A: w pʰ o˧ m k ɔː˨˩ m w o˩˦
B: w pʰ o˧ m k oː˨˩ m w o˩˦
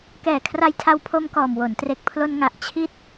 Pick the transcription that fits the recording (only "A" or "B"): A